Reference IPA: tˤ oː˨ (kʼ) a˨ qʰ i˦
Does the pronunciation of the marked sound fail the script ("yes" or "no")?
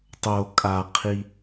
no